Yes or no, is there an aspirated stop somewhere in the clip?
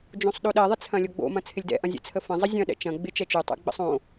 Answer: yes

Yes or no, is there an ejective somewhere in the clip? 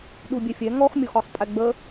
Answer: yes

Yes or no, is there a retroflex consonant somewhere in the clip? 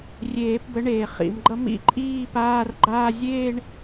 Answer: yes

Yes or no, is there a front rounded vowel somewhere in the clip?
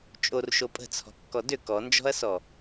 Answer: yes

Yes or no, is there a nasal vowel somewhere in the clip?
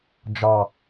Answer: no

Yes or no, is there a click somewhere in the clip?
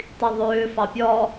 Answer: no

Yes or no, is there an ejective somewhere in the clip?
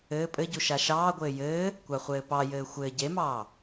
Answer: yes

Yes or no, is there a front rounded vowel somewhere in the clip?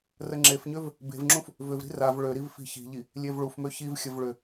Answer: yes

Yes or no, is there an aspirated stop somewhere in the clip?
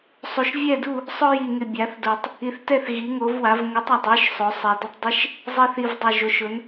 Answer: no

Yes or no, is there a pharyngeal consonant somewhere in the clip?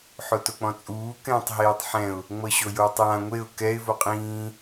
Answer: yes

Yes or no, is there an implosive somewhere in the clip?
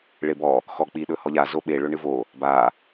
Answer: yes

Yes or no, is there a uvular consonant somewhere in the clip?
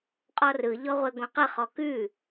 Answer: yes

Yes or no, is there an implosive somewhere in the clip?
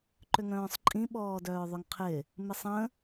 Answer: yes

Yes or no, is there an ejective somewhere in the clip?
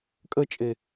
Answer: yes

